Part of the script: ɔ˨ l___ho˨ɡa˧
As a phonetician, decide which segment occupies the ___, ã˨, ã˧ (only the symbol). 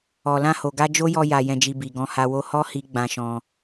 ã˧